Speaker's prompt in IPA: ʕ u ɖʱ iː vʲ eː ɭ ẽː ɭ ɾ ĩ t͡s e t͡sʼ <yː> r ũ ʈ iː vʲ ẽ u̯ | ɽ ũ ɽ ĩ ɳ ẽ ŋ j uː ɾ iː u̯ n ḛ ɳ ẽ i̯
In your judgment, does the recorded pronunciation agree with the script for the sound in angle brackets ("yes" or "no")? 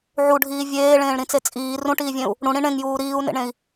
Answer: no